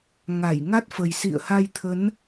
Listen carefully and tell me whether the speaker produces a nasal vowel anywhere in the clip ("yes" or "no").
no